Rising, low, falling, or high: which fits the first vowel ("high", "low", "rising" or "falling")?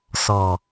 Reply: low